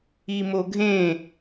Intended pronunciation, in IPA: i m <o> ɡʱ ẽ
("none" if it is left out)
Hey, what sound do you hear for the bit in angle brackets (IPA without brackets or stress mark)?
o